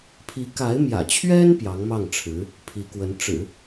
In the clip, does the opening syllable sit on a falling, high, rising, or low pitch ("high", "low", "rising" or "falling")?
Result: rising